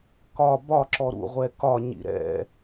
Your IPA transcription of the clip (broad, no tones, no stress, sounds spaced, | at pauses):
k ɒ b ɒ ǁ ɔ ɾ ṵ ʁʷ ɛ k ɒ ɲ ḭ ɾ ɛ̰